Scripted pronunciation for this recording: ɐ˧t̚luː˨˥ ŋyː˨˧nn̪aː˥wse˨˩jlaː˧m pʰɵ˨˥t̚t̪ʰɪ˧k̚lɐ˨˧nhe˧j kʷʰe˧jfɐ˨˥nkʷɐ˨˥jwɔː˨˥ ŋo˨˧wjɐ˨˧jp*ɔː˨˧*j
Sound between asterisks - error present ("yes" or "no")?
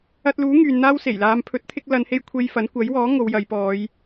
no